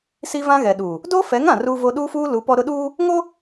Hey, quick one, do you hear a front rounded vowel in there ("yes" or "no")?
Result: no